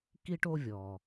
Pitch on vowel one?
high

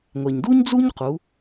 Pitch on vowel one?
low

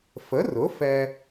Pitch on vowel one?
rising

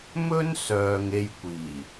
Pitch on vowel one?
high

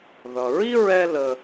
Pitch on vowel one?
low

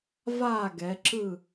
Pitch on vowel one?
falling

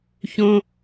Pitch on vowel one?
high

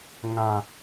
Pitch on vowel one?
low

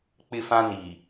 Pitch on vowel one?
high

